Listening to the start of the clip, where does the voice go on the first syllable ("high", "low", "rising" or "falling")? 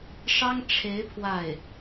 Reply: high